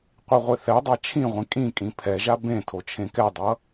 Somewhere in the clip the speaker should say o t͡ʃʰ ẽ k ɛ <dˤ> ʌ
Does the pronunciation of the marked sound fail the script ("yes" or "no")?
no